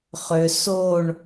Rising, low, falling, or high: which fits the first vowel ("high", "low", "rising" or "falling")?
high